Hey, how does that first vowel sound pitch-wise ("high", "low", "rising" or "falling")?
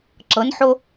rising